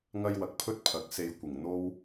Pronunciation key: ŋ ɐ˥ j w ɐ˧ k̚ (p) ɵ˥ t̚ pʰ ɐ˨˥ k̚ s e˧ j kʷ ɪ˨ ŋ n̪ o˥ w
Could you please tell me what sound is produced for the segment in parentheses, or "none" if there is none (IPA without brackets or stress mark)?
pʰ